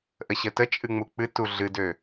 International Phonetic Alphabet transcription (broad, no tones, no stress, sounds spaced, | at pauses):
ʔ ə ɕ ə t ə t͡ʃʼ ɨ ŋ͡m u k͡p ɨ t u ɮ ɨ d ø